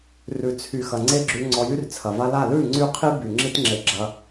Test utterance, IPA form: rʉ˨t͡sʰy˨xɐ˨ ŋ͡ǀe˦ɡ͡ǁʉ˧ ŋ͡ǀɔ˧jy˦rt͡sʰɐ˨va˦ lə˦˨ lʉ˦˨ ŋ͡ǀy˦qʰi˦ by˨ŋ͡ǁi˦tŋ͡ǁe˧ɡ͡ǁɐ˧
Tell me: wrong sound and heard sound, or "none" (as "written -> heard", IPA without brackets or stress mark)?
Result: ə˦˨ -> a˦˨